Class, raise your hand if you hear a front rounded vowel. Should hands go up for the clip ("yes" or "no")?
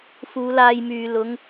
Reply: yes